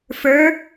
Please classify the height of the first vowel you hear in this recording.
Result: mid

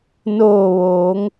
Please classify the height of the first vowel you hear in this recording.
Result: mid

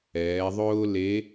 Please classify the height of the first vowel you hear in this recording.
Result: mid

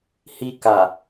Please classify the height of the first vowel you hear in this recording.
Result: high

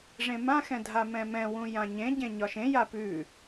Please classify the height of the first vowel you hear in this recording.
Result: mid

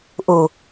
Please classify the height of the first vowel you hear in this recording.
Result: high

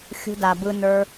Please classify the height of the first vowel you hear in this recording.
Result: high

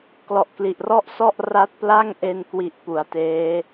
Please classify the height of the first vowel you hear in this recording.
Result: mid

